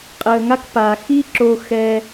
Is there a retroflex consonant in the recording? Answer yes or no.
no